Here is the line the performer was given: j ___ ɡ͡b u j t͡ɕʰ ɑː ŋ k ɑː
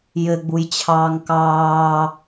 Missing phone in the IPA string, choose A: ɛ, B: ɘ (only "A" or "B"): B